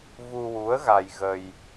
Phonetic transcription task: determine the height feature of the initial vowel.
high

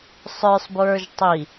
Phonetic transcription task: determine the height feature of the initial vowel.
mid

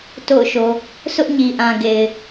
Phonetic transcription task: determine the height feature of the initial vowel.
mid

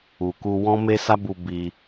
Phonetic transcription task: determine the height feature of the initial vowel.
high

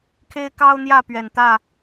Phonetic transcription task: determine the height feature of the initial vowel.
mid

